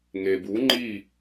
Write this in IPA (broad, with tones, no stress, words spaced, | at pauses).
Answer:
ŋe˨bu˨˦ŋ͡ǃi˦˨